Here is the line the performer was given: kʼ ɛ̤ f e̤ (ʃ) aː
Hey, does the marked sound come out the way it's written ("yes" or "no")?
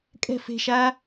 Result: yes